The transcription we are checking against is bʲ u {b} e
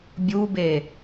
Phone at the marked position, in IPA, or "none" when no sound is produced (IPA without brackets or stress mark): b